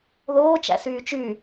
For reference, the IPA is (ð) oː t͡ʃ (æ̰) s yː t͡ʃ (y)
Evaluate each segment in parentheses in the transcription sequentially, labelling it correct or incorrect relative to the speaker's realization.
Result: correct, correct, correct

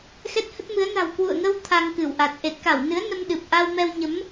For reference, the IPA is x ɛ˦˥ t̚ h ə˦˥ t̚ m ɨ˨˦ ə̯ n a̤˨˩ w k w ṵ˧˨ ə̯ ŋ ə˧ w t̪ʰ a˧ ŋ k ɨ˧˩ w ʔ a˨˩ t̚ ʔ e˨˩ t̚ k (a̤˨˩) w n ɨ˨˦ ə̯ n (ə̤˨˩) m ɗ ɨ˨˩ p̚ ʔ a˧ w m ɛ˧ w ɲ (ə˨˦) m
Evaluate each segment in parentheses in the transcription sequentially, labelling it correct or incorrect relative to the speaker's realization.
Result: incorrect: a˧˩, incorrect: ə˧, correct

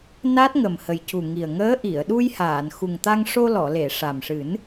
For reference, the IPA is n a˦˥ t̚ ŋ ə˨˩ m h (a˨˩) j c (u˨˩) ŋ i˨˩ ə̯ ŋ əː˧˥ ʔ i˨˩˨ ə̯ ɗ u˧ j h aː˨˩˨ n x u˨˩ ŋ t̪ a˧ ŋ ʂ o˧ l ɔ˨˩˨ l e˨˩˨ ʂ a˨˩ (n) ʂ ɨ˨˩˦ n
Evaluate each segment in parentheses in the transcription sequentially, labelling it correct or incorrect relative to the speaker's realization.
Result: incorrect: ə˨˩, correct, incorrect: m

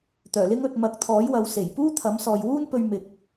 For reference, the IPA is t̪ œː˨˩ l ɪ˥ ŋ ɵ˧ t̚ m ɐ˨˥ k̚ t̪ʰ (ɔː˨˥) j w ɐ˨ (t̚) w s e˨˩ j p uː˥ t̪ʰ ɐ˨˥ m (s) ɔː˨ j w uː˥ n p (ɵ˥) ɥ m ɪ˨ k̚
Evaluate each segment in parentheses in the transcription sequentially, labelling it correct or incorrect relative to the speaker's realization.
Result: correct, incorrect: none, correct, incorrect: ɵ˧

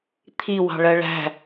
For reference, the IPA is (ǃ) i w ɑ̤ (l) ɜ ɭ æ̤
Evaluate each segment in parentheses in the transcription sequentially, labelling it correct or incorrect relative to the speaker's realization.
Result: incorrect: t̪ʰ, incorrect: ɭ

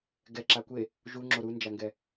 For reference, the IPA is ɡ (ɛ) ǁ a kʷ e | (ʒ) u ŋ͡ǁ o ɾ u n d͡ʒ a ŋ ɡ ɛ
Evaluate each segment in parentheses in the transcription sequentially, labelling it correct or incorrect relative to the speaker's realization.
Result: correct, correct

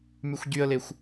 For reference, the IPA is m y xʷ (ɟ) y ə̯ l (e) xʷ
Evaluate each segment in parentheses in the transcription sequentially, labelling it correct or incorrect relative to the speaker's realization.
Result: correct, correct

